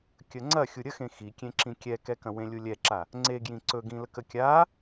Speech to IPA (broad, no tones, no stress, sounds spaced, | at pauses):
kʲ ə ŋ͡ǀ ɐ xʲ u ɾʲ ə x ẽ x i kʲ ẽ ǁ ĩ kʲ ɛ k ɛ k ɐ̃ w ẽ lʲ u lʲ ɛ ǁ a | ŋ͡ǀ e ɡ j ĩ ǀ ɵ ɡ ĩ l ə k ə kʲ a